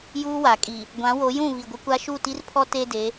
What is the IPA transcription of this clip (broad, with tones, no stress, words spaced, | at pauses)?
juː˦wa˨kʼi˨ | ɡʷã˨˦wo˨˦jũ˦˨ βi˨ɡʷɪ˦kʷa˦ ʃu˦˨ti˦rpʰɔ˦ te˦de˨˦